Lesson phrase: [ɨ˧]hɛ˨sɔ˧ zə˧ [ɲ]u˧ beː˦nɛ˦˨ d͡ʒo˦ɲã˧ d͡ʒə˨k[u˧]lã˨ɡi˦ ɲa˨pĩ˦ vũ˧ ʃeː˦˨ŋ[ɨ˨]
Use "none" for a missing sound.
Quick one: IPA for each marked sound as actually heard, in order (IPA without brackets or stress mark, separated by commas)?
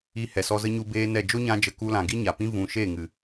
i˧, ɲ, u˧, ɨ˨